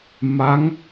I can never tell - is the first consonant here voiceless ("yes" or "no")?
no